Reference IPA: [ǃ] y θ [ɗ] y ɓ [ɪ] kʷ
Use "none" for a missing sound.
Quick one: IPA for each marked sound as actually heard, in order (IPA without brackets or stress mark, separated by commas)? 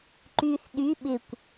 ǃ, ɗ, ɪ